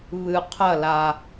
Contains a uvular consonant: yes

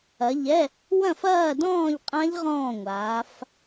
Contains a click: no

